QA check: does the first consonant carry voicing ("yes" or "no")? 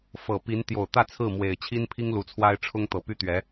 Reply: no